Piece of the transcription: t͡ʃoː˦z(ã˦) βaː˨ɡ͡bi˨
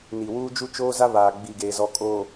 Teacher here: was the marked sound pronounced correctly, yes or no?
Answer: no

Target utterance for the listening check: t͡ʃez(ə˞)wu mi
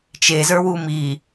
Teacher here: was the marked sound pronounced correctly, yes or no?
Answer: yes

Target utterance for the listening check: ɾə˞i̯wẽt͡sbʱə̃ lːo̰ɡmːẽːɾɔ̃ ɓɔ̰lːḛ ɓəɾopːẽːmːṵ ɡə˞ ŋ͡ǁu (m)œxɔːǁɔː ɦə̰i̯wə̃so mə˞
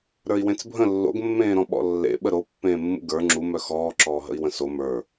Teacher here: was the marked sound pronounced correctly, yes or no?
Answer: yes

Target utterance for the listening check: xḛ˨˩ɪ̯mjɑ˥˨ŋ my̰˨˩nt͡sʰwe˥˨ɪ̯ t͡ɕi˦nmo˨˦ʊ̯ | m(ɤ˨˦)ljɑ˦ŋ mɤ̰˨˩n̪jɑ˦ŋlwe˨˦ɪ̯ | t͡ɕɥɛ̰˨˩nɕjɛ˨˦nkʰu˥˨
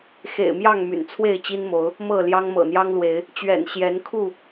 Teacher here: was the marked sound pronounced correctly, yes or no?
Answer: no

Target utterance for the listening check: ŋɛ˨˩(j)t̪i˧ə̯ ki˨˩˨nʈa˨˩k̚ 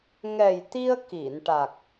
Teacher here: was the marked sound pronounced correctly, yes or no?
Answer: yes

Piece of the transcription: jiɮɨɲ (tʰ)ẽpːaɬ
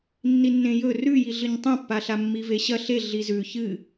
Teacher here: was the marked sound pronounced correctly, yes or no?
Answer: no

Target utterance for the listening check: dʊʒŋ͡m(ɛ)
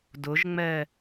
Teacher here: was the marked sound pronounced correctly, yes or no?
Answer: yes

